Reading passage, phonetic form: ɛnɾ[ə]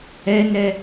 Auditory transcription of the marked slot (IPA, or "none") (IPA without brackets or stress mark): ɛ